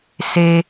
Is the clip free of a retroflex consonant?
yes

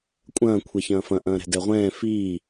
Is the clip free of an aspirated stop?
no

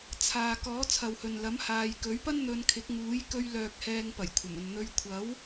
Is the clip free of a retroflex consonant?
yes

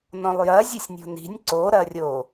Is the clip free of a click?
no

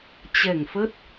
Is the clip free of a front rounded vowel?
yes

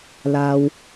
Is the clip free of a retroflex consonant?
yes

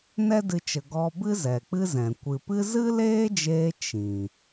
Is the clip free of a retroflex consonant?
yes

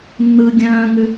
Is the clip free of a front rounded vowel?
no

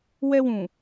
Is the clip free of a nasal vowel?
no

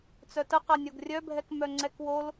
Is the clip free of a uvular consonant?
no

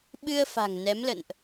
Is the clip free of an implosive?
no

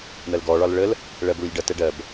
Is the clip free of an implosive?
yes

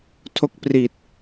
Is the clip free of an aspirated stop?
no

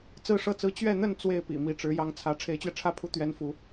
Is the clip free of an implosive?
yes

